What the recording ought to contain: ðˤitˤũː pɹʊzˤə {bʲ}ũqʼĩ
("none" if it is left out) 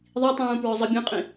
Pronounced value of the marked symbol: bʲ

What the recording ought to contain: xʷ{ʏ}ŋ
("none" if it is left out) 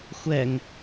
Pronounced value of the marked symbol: ɛ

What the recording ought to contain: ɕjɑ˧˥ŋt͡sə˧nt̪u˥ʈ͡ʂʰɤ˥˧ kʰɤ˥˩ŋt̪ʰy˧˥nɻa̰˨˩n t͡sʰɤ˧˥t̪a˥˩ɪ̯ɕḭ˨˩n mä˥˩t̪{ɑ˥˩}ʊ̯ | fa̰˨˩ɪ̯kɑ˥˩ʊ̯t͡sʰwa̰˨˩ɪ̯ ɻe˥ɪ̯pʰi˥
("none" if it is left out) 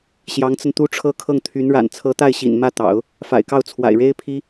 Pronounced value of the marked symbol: ɑ̰˨˩˦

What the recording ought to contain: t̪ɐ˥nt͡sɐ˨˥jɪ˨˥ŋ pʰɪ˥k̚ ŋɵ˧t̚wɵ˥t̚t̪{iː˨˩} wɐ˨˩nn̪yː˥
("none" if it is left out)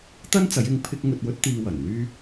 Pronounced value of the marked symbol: iː˧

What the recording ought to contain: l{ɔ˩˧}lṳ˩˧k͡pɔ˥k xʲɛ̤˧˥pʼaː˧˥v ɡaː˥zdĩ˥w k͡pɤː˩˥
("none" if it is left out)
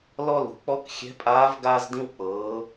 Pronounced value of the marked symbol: ɔ˥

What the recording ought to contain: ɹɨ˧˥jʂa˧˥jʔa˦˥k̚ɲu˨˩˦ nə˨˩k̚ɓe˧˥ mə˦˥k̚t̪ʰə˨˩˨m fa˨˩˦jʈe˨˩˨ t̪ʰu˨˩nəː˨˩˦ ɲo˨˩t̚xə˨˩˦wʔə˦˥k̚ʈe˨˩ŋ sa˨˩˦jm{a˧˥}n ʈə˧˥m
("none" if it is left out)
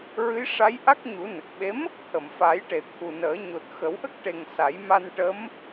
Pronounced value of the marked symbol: a˧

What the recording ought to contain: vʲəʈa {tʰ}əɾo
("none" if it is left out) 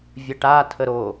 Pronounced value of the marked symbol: tʰ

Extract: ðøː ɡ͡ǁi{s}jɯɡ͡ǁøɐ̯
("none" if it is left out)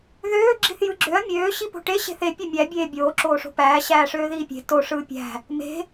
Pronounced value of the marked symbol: θ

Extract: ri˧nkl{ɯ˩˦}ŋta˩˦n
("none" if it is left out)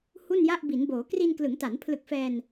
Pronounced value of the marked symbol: ɯ˩˦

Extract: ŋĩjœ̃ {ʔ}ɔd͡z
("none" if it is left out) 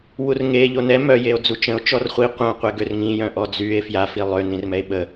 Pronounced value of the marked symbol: ʔ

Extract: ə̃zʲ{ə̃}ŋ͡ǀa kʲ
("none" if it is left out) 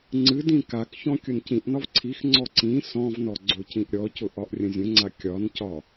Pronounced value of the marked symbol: ə̃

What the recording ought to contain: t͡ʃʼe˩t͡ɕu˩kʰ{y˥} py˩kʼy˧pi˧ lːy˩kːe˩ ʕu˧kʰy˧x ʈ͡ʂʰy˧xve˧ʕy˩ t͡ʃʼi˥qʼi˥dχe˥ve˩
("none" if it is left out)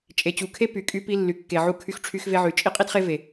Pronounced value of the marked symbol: e˥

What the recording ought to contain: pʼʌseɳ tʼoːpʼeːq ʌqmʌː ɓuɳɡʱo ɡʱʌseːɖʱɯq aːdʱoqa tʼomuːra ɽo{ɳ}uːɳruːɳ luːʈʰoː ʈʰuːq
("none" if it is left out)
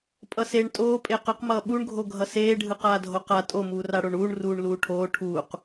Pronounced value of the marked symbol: ɳ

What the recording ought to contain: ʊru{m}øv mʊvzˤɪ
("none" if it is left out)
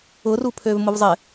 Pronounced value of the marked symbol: pʰ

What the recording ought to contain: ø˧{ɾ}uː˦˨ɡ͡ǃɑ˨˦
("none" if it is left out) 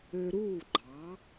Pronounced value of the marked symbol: ɾ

